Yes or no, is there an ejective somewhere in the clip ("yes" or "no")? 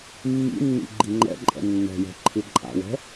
yes